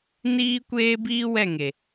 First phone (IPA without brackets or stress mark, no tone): n